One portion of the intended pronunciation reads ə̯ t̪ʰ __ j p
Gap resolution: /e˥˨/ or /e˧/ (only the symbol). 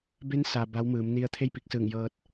e˥˨